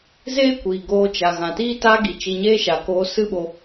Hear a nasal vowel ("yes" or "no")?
yes